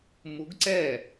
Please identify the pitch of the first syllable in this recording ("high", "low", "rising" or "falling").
rising